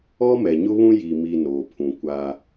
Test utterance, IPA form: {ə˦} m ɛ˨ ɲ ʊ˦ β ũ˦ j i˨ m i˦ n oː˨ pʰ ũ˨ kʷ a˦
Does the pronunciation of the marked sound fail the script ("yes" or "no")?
yes